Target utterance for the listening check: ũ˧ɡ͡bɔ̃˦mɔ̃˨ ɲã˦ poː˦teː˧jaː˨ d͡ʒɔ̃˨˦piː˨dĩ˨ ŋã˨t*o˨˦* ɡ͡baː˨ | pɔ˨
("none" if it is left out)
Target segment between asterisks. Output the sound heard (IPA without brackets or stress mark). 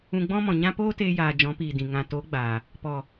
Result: o˨˦